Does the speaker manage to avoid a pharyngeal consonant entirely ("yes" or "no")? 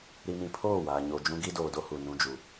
yes